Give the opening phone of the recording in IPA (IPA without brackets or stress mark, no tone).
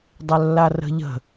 dˤ